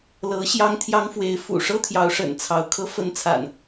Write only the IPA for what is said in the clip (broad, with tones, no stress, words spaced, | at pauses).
lɤ˨˦ ɕjɑ˦ŋt̪ʰjɑ˦ŋfwe˨˦ɪ̯ fṵ˨˩ʂɤ˦ t̪ʰjɑ˨˦ʊ̯ʂə̰˨˩nt͡sʰɑ˨˦ʊ̯ kʰɤ˨˦fə˨˦nt͡sʰa̰˨˩n